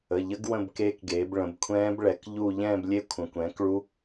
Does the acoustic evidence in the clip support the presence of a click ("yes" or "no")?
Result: no